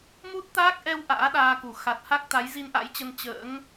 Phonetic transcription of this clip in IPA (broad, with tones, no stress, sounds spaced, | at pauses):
m u˦˥ t̚ t̪ aː˦˥ k̚ ʔ ɛ˧ w ʔ a̰ː˧˥ ɗ aː˧ k u˧˩ x a˨˩ t̚ h a˦˥ k̚ t̪ a˨˦ j z i˧ n ʔ a̰˧˥ j t͡ɕ ə˧ n t͡ɕ ə̰ː˧˥ ŋ